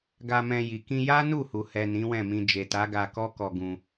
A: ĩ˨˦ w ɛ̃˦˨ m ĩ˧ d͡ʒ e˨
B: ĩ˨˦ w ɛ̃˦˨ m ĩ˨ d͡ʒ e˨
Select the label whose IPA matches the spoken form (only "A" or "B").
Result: A